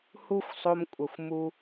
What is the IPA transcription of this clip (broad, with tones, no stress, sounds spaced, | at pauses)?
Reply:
h u˦ xʷ sˤ o˧ m kʷʼ ə˨ xʷ m u˧